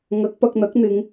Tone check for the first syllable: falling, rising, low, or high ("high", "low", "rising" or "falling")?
rising